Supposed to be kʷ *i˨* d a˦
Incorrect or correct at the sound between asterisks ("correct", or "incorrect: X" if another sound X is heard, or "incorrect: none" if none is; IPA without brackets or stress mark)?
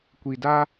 correct